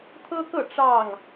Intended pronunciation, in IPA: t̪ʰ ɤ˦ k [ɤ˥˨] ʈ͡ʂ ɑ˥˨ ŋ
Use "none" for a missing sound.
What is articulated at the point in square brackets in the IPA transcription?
ɤ˥˨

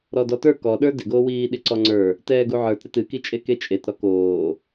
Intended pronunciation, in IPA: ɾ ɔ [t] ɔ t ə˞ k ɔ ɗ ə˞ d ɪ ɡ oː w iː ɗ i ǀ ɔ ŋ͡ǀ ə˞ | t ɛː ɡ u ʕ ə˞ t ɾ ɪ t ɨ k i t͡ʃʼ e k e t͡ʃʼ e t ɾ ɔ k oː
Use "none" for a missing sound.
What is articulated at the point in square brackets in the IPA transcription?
d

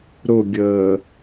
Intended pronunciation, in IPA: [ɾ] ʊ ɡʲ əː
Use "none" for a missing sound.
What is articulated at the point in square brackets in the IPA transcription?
ɾ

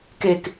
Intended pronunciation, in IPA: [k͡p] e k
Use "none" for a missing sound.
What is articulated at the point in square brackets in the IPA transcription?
k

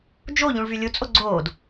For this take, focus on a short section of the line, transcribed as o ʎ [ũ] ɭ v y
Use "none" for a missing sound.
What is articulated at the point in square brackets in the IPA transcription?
ũ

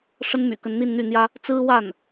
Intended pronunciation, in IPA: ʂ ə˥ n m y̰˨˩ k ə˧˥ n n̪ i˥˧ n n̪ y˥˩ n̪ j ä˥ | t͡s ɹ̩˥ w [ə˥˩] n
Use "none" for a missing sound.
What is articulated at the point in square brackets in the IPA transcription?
a˥˩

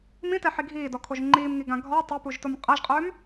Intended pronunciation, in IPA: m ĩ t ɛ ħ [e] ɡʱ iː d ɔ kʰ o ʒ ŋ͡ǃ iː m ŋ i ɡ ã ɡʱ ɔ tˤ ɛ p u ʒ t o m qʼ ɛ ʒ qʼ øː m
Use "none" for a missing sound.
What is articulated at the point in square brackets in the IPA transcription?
i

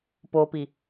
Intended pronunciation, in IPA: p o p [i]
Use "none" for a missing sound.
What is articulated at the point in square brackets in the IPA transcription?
i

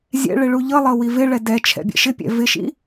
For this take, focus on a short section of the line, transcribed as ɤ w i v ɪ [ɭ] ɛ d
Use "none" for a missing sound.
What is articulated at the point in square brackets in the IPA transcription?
ɭ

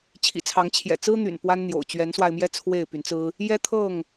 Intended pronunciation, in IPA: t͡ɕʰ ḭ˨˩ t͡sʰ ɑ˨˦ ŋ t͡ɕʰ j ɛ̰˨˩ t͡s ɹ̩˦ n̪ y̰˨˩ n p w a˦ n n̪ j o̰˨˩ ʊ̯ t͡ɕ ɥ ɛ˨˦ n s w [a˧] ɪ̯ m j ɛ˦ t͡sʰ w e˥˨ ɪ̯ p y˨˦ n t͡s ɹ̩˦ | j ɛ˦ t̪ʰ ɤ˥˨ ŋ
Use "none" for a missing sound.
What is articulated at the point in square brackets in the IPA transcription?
a˧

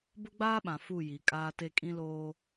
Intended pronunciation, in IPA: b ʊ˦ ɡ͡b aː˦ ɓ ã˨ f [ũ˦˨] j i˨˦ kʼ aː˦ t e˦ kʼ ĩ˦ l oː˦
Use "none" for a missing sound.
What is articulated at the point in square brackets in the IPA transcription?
u˦˨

